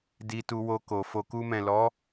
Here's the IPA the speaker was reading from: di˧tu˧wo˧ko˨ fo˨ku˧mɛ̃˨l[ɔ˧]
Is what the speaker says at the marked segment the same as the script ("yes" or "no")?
no